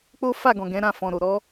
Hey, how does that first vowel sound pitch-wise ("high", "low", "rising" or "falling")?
high